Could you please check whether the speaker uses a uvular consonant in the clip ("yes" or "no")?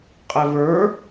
yes